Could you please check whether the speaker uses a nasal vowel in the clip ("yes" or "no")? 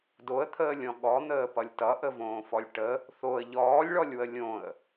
yes